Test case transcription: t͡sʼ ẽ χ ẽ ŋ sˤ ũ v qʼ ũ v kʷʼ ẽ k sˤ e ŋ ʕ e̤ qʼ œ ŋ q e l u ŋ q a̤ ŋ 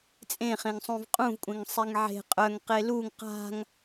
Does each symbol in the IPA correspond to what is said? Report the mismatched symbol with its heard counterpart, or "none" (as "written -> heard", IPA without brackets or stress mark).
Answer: k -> ŋ